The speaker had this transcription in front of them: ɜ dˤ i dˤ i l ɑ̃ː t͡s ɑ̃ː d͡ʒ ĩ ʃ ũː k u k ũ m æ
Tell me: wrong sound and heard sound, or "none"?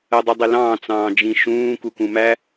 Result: none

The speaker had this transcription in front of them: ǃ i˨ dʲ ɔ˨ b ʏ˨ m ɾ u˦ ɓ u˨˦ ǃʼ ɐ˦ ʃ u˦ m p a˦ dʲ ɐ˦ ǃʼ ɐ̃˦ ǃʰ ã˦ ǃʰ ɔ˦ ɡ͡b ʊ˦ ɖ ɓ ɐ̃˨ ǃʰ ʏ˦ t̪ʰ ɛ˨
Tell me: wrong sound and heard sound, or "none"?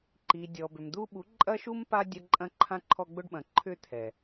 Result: ɾ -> d̪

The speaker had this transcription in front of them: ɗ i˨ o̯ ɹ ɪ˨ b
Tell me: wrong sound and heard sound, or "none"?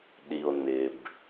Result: ɹ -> n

